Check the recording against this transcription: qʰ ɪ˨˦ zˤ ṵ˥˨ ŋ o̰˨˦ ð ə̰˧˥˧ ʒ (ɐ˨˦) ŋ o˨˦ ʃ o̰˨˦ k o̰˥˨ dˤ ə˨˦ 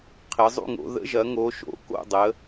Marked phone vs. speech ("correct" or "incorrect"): correct